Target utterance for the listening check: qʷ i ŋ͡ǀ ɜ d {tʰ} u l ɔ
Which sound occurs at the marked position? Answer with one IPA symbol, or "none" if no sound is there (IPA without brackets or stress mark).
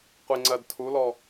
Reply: tʰ